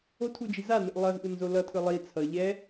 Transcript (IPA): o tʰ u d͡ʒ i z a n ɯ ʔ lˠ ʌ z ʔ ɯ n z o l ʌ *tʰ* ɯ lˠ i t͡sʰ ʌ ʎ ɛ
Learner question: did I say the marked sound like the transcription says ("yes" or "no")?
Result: yes